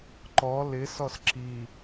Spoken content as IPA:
ǃɔ lɪsɔs ǁi

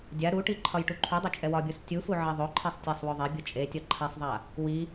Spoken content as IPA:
dʲa ɾuʈi ǃʰɒjʈuǃʰudˤe t͡ʃʼɛwɒbʲos tʲufu ʕeðˤoǃʰɛsˤ tʲasˤwoðˤebʲu t͡ʃʼetʲɒ ǃʰasˤðˤa | wi

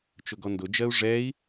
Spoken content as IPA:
t͡ʃʊɡɔndʊ d͡ʒɜu̯ʐɛi̯

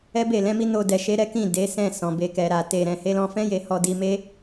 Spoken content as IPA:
ɛ˦be˦˨lɛ̃˨˦mi˦ no˧dɛ˨ʃe˧ ɾɛ˦kĩ˦˨ de˨˦sɛ̃˦˨ sɔ̃˨be˧ kɛ˨ɾa˨ te˨ ɾɛ̃˨he˨˦lɔ̃˧fɛ̃˦ je˦ hɔ˧di˧me˦

